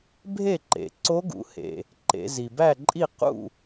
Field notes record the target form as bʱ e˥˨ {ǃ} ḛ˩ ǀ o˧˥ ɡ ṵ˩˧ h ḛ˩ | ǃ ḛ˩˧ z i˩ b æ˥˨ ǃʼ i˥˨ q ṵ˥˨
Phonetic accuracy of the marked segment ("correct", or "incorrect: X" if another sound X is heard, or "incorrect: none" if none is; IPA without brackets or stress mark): correct